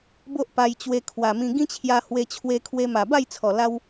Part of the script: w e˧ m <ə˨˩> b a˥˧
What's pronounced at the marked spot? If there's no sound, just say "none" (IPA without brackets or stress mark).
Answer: a˨˩